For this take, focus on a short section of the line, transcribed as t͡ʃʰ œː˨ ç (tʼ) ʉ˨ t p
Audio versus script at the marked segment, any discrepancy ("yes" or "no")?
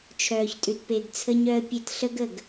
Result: no